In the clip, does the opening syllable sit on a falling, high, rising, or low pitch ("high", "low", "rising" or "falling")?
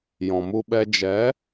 low